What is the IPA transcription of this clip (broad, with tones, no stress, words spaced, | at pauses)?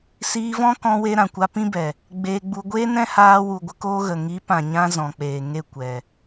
siː˧vɔ̃˦kɔ̃˧we˧ ɾã˨kʷa˧pĩ˦bɛ˨ | ɡ͡beː˧ɡ͡bu˧ ɡʷeː˦nɛ̃˦haː˧wu˨ ɡʷə˦koː˦ɣə˨ ŋi˨˦pã˨ ɲã˦zɔ̃˨ k͡peː˨ŋe˦˨ kʷɛ˨